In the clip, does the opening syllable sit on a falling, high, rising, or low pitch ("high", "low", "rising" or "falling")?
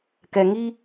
low